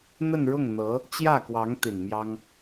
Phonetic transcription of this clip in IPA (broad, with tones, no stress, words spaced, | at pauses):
n̪ə˥˧nɻʊ˥˩ŋn̪ɤ˧˥ | t͡ɕjä˥˩kwɑ˧˥ŋ t̪i˨˩nmjɑ˥ŋ